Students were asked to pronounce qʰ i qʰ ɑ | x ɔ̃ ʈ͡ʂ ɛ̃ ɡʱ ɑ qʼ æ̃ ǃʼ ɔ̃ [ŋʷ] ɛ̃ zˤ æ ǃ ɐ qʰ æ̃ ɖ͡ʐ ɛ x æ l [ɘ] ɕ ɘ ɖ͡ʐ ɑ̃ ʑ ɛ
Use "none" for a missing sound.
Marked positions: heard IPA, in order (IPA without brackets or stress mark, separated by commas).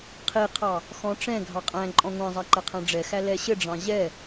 ŋʷ, ɛ